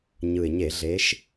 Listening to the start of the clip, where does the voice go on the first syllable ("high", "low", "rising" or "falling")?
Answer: low